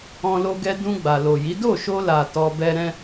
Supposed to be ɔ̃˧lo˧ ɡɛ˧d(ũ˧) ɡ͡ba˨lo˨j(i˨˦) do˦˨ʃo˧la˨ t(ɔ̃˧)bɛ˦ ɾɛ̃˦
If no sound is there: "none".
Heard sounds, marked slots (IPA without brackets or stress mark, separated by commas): ũ˧, i˨˦, ɔ˧